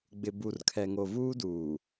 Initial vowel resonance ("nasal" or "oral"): oral